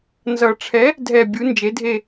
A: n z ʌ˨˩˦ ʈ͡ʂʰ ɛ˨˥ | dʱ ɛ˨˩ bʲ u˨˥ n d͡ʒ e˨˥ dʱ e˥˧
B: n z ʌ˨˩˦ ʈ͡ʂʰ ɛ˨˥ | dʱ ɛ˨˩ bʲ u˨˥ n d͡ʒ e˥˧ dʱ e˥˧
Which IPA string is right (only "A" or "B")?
A